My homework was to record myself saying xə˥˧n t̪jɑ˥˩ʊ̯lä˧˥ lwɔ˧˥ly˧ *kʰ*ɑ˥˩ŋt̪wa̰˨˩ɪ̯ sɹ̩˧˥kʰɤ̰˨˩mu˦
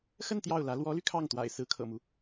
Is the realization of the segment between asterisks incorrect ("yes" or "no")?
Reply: no